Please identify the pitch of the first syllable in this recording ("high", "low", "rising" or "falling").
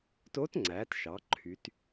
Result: rising